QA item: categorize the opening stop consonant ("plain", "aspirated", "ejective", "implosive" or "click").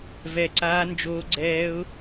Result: click